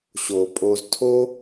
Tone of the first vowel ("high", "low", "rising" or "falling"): low